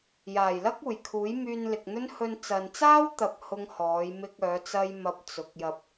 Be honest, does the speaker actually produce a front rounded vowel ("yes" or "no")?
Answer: yes